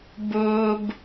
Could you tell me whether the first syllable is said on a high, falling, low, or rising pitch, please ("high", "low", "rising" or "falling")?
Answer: high